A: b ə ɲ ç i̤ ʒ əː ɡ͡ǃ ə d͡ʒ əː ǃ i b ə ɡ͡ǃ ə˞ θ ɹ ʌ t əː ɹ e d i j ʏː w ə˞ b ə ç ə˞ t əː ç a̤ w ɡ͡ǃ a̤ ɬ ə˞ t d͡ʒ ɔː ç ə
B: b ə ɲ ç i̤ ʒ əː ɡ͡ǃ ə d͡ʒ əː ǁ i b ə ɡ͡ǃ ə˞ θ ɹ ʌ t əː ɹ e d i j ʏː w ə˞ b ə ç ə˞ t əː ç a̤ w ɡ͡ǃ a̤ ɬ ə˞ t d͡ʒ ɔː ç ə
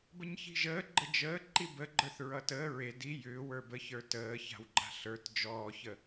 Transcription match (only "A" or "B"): A